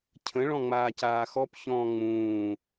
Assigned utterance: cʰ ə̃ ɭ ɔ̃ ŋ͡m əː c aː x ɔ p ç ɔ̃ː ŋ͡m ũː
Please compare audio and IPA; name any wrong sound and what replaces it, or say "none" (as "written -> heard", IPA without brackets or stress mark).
əː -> aː